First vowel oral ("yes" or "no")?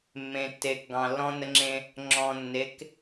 no